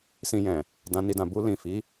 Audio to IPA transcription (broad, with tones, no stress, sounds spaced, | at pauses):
s ĩ˧ j ɛ̃˨ | d ã˧ n i˧ d ã˨ b u˧ l ĩ˨ f i˨˦